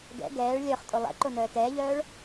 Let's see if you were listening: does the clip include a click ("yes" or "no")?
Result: yes